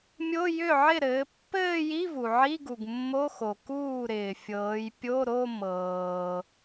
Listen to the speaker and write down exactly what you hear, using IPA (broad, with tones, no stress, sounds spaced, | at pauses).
mʲ o˧˥˧ j ʏ˥˩ ʕ ɪ˥˩ ɾ ɘː˩˧ pː ɘː˥˧ j i˧˥˧ v u˩ ʕ i˧˥˧ ɡ u˩ ɡ mː o˧˥˧ x o˩ k uː˥˩ ɾ ɪː˩ fʲ ɤː˩˧ j pʲ o˧˥˧ ɾ o˥˧ m ɤː˩